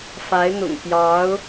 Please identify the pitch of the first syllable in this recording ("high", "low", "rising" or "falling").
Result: rising